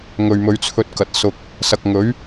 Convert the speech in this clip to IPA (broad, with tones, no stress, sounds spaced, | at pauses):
ŋ ɵ˨ ɥ m ɵ˨˧ ɥ t͡sʰ ɵ˧ t̚ k ɐ˨ t̚ s ʊ˨ k̚ | s ɐ˨ k̚ ŋ ɵ˨˥ ɥ